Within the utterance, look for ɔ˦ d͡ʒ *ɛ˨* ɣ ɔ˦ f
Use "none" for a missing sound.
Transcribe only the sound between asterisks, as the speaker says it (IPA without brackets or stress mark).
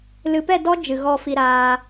ɨ˨